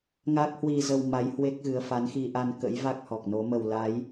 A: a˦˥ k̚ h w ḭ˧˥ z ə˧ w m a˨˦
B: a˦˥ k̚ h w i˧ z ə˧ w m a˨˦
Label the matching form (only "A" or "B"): B